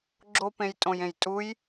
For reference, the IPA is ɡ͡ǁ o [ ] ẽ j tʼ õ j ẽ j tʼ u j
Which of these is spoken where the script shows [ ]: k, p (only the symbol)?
p